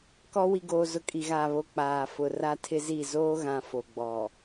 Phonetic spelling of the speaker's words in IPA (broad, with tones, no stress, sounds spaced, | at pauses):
k ɔ˦ w i˨ ɡ oː˨ z ʊ˨ kʼ i˨ ɣ aː˨ β o˨ k͡p aː˨ f ʊ˨ r a˦ tʰ ɪ˦ z i˦˨ z oː˦ ɣ ã˨ f o˨ ɡ͡b ɔ˨